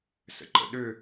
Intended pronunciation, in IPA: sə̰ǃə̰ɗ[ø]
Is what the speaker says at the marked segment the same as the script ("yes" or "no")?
yes